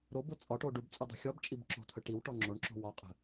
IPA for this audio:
ɾ o b o t͡sʼ ɒ ʈ o ɖ u b t͡sʼ ə dˤ i̤ xʲ ɒ b t͡ʃʼ i b ǁ o̤ t̪ʰ ə ʈ i w ʈ ɔ ŋ͡ǁ o ɳ ǁ o̤ w ɒ qʼ ə̤

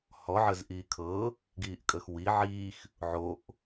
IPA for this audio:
h ɔ ʕ ə z ʔ iː kʰ ɤ | ɡ iː ʔ kʼ əː x w i ʕ iː x | ʕ o ʔ

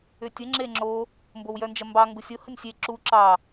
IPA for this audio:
ʏ tʲ ə ŋ͡ǁ e ŋ͡ǁ o | m b o w j œ n d͡ʒ ɐ m b ɑ ŋ ɡ u sʲ o h ə nʲ sʲ e ǁ u ǁ ɑ

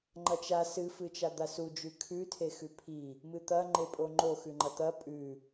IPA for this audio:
ŋ͡ǃ ɐ t͡ʃ a s ɨ f ɨ t͡ʃ a d̪ a s u d͡ʒ ʉ kʰ ʉ tʰ e x ʉ pʰ i | m ɨ t̪ ɐ ŋ͡ǃ e pʼ o ŋ͡ǃ o x ʉ ŋ͡ǃ ɐ t̪ ɐ pʼ ʉ

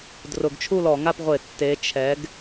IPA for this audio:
d r ʊ˧˩˧ ɡ t͡ʃʰ u˥˨ l ɔ˧˩˧ ŋ a˥˨ p ʁʷ ɪ˧˩˧ tː e˨˥ t͡ʃʰ ɛ˨˥ ɡ

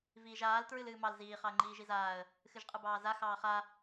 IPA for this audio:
v iː ʒ aː l t ɹ ɨ l ɨː m ɑ l z iː χ ɑ ə̯ ŋ͡ǃ iː ʒ i z aː ə̯ | x ɨ ʒ qʼ ɨ b ɑː z a x ɑː χ a

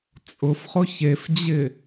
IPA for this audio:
t͡sʼ ʊ f χ ʊ ç e f d͡ʑ ɪ

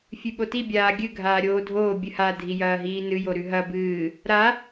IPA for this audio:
fʲ ʉ ɓ o t i bʲ aː ɡʲ ɨ ɡʱ aː ɾʲ oː dʱ oː bʲ ɨ h a dʱ i j ɐː ɦ iː n ɨ j o ɾ ʉ ɦ ɐ b ɨː | ɾ a

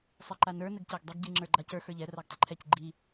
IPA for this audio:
sˤ i ǃ a n ə˞ n ɘ ɡ c æ ɡ dˤ ɘ ɡ ɟ i ŋ͡ǁ ə˞ ɡ͡ǃ a c ə˞ x ə˞ ʎ ɛ r a ɡ tˤ ɪ ǃʰ ɛ c ɡ͡ǃ i

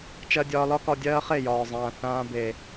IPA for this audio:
t͡ʃ ɜ˧ dʲ ɒː˧ l ɒ˦ k ɒ˧ dʲ ɜː˦ χ e˦˨ j ɒː˨ zˤ ãː˨ θ ãː˧ b e˨

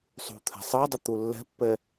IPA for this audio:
sˤ ṳ t̪ʰ ɛ̤ sˤ ɤ dˤ ɛ t̪ u lː ɛ̤ pː ɛ

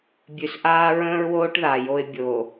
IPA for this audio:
bʲ ʉ˨ s ʔ aː˦ ɹ ə̃ː˦ ɹ w oː˦ ʈ ð a˨ j o˦ ɪ̯ bʲ o˨

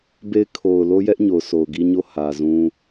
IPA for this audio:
b e˦ ɪ̯ kʰ o˨ ʊ̯ l o˦ j ɛ˦ ʔ ɲ o˨ ʊ̯ sʰ o˨ ʊ̯ ɡ i˦ ɲ o˦˨ h ä˨ z ũ˦

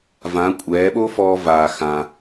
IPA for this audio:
v ã˩˧ kʷʼ ɛː˩˧ ɓ o˥ f ɔː˧ v aː˩ x ãː˩

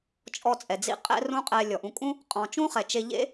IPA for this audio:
t͡ʃʼ ɔ˧ t͡sʼ ɛ˨ d͡z ḭ˦ qʼ ɛ̰˦ r ũ˦ qʼ ɛ˧ lʲ ɔ˨ ʔ ũ˧ kʼ ũ˦ | qʼ ɔ̃˨ t͡ʃ ũ˦ χ ɛ˨ t͡ʃ e˧ ʎ ḛ˦

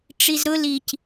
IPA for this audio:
ʈ͡ʂ i z ɾ ʊ l i c

